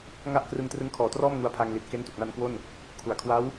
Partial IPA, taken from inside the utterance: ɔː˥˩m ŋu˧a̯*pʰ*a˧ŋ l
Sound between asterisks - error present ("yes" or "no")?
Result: no